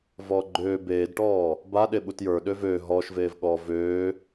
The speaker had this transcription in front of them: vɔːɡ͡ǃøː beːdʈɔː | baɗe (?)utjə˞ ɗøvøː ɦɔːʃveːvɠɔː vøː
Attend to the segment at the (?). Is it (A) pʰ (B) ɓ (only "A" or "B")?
B